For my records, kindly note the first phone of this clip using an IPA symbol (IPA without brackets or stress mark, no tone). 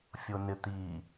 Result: fʲ